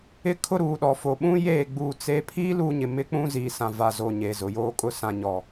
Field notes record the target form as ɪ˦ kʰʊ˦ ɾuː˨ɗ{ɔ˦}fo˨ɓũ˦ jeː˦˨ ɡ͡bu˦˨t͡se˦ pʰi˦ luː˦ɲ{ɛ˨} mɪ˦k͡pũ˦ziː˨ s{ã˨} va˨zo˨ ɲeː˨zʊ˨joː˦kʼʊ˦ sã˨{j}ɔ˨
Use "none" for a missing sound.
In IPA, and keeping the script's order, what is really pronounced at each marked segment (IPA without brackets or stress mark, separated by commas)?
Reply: ɔ˨, ɪ˨, ã˨, ɲ